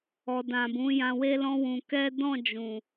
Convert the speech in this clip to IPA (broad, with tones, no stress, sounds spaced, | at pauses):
ɔ˨ d ã˨ b ũ˨˦ j ã˧ w e˦ l ɔ̃˦ w ũ˧ k ɛ˦ d ɔ̃˦˨ d͡ʒ ũ˨